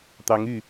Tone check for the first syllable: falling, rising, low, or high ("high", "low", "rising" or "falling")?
rising